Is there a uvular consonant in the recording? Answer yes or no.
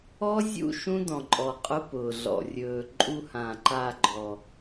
yes